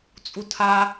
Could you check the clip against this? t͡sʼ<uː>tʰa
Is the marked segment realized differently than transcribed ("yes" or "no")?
yes